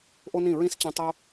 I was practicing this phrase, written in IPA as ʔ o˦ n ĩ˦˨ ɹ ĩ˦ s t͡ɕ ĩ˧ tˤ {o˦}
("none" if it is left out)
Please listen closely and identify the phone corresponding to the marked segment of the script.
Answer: o˦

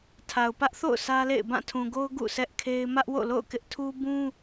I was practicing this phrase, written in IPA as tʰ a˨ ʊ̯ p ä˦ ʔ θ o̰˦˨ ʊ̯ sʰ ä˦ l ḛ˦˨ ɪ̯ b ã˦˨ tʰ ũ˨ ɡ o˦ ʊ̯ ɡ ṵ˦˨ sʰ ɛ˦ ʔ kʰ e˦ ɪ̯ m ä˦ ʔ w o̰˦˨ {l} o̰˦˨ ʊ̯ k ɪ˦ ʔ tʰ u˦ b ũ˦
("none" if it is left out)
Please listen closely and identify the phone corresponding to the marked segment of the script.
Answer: l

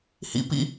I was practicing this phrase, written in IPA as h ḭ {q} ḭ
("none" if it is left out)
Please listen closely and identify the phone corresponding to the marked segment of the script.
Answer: p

